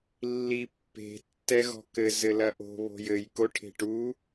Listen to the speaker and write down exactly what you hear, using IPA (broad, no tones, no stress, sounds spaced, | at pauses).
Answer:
lː i pː e̤ tː ɛ ɣ ɔ̤ k ɘ z ɘ l ɐ ʔ o̤ β o̤ j ɘ j k o ʈʰ e̤ ʈ u